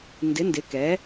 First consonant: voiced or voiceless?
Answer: voiced